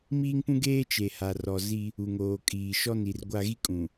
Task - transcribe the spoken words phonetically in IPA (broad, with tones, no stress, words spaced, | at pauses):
miː˦ŋpũ˦ɡeː˦ t͡ʃe˨ha˨rɔ˨ zi˦ | u˨ŋoː˨kʼiː˨ ʃɔ˦ni˨rɡʷa˦ ɣi˦kʼũ˨